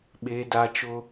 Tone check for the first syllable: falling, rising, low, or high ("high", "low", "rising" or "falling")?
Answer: high